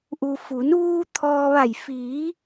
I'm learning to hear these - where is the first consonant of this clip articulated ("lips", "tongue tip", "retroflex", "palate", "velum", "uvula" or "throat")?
throat